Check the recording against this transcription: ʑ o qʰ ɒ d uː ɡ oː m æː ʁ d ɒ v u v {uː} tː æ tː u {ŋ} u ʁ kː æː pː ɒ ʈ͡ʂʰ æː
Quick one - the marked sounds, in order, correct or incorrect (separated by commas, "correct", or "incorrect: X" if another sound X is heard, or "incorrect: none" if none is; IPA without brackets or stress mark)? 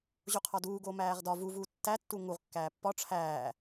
correct, correct